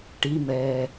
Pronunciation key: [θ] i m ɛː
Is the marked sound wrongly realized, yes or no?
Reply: yes